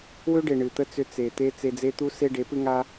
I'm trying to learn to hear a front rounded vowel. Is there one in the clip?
yes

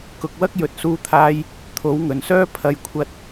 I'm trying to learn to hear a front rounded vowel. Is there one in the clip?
yes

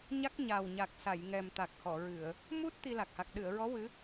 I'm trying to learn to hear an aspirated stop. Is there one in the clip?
no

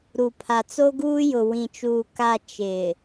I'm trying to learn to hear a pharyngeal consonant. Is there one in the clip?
no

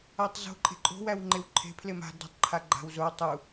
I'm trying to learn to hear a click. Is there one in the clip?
yes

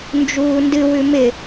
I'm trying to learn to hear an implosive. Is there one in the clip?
no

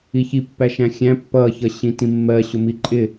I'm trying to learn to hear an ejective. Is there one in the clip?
yes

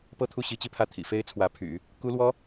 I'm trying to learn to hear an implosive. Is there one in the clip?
no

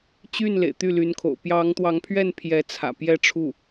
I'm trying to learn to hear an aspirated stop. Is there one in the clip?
yes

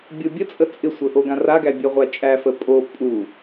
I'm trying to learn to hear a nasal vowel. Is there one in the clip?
yes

